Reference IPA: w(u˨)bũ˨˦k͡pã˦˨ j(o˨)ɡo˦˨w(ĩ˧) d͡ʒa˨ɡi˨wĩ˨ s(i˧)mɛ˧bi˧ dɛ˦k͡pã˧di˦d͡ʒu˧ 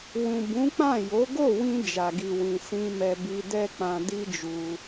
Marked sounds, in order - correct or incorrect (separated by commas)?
incorrect, incorrect, correct, incorrect